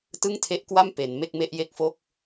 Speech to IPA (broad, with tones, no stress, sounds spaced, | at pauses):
t ɯ˥˩ ŋ tʰ e˦˥ ʔ k w a˥˩ m p e˩˦ n m e˥˩ k̚ m e˥˩ ʔ j e˥˩ k̚ f o˥˩ k̚